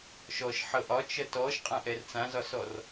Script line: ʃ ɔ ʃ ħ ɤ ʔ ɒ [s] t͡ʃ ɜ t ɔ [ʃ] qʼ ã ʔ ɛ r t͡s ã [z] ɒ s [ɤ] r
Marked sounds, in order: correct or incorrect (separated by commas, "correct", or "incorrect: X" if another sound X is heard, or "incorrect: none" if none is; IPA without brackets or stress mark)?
incorrect: none, correct, correct, incorrect: ɔ